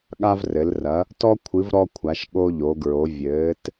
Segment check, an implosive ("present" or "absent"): present